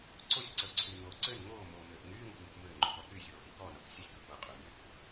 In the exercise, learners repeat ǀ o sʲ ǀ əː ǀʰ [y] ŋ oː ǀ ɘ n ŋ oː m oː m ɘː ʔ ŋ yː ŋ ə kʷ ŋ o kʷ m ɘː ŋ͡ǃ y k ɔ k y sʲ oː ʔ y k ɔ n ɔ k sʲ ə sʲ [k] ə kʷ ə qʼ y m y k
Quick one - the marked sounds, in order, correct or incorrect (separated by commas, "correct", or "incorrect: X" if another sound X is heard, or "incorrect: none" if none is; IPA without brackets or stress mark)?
correct, correct